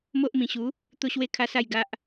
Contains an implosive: no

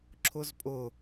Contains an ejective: yes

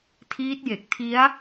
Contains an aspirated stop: yes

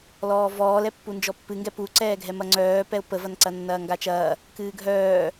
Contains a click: yes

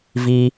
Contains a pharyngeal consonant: no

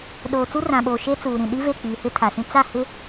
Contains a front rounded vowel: no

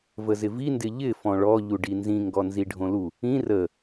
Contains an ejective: no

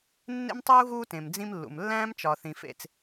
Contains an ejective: no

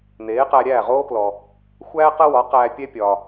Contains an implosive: no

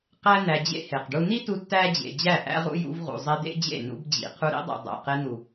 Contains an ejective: no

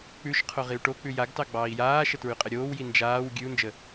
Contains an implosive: no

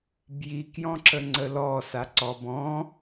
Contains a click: yes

